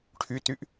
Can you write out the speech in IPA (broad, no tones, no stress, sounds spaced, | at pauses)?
ʈʰ y t y ʔ